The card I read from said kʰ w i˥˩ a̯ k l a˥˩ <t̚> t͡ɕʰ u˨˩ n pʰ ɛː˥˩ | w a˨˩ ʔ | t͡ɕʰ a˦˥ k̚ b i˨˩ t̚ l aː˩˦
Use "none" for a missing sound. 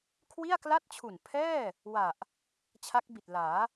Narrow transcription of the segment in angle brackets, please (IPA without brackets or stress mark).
t̚